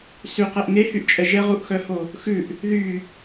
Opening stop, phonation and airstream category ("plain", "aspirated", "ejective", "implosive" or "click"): plain